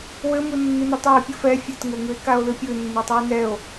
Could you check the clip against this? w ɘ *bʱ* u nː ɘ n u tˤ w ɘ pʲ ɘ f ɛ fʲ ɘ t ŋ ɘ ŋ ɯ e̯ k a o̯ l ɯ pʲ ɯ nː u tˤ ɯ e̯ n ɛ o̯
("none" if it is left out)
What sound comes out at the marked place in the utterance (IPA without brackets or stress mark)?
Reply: m